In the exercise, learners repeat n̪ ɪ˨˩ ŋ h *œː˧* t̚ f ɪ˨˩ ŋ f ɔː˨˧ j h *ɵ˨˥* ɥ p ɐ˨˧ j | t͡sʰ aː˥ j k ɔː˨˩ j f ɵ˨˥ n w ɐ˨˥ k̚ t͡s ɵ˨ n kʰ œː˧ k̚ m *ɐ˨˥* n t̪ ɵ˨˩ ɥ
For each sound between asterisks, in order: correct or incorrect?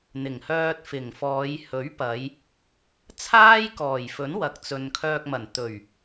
correct, correct, incorrect

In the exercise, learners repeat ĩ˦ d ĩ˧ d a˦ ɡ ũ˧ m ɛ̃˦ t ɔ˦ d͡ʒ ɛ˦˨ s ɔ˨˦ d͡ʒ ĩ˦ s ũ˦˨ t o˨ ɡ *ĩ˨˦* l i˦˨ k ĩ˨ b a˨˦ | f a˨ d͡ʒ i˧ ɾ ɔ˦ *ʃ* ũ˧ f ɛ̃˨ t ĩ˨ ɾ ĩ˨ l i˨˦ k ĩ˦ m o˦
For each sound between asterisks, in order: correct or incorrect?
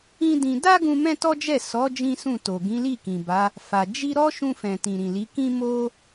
correct, correct

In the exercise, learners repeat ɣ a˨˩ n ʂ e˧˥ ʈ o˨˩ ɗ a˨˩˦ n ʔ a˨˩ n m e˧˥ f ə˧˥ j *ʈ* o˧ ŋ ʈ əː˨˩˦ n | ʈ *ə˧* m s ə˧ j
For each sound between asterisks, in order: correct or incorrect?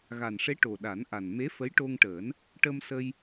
correct, correct

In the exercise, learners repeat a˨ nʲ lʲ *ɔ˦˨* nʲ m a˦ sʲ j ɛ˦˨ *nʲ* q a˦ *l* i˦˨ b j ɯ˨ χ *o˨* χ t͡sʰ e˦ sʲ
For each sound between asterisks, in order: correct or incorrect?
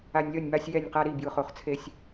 correct, correct, incorrect, correct

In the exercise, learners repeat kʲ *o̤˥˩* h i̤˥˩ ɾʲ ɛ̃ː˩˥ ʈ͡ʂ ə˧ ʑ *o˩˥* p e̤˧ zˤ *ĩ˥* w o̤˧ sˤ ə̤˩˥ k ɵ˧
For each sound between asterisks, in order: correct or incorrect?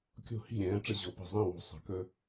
correct, correct, incorrect

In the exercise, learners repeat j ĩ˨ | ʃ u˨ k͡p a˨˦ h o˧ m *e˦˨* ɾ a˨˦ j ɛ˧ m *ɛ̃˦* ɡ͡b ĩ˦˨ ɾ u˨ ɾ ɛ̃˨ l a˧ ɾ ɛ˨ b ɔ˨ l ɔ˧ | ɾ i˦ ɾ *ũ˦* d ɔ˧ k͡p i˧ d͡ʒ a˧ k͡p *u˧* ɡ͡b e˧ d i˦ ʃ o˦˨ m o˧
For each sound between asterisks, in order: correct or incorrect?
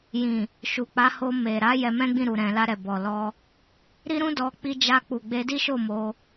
incorrect, correct, correct, incorrect

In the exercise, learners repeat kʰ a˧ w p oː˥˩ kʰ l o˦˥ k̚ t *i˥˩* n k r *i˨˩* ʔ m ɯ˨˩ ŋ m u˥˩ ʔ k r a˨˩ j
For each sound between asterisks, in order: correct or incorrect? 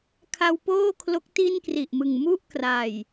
correct, correct

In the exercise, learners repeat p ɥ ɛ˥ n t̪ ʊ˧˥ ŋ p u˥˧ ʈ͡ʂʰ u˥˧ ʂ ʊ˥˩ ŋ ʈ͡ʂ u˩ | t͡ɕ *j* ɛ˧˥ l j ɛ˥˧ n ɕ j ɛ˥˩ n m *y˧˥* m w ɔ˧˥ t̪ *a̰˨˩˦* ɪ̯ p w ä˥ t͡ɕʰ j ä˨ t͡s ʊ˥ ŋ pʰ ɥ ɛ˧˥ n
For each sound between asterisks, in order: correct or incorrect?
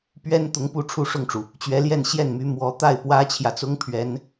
incorrect, correct, incorrect

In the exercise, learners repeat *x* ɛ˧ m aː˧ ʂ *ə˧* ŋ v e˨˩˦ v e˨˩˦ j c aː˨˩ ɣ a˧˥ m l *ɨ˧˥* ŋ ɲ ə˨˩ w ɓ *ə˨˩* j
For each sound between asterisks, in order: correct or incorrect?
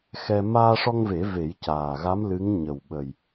correct, incorrect, correct, correct

